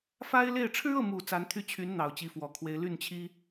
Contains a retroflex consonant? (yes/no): yes